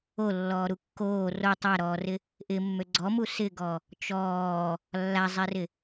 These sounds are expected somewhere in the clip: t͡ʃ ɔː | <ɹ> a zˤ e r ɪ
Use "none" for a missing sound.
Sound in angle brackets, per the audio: lː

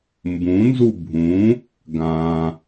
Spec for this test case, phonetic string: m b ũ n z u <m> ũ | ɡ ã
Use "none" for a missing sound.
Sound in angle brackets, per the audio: bʱ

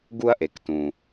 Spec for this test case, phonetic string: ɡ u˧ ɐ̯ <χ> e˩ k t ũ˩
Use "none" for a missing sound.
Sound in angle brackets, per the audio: ʔ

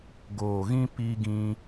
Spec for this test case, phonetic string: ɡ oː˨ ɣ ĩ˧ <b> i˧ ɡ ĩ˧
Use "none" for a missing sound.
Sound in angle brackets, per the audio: p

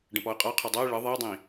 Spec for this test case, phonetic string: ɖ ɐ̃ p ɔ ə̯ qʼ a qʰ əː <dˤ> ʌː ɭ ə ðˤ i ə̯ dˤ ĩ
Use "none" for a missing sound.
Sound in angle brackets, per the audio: dˤ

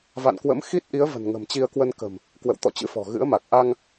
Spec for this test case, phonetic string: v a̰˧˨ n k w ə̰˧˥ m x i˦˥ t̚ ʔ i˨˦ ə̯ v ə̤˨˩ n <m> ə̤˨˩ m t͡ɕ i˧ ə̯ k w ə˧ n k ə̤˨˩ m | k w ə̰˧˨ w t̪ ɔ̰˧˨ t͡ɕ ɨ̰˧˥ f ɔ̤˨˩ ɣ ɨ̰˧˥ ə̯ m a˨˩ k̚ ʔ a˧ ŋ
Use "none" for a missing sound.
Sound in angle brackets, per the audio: ŋ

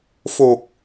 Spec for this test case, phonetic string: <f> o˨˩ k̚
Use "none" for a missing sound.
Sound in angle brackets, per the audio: f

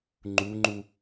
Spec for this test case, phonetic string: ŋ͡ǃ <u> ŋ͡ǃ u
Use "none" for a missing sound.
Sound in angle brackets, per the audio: u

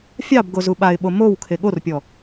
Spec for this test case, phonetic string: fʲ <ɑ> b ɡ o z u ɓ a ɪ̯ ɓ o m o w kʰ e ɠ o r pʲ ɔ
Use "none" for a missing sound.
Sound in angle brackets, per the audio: ɑ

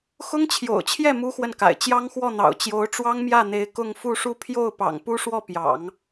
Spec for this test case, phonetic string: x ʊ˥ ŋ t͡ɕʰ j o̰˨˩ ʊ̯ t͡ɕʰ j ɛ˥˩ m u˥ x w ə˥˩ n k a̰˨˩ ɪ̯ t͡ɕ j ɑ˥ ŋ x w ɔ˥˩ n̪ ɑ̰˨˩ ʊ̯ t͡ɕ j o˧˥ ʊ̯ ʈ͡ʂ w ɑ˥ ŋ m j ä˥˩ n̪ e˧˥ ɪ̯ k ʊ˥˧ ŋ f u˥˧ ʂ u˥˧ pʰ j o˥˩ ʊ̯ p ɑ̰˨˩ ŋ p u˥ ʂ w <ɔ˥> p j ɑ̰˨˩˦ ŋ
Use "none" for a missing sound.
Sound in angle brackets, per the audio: ɔ˥˩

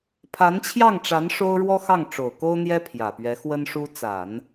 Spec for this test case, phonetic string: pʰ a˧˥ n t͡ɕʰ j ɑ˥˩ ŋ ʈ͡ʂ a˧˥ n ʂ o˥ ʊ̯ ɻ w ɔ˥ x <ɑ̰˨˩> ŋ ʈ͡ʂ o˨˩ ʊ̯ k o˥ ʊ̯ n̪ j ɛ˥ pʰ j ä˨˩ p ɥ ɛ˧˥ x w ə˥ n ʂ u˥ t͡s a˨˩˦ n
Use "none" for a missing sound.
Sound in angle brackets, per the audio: ɑ˥˩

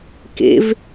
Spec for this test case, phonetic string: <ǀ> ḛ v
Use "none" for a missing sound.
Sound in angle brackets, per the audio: k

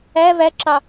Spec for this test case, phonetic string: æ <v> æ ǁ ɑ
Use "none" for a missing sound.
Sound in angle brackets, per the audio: v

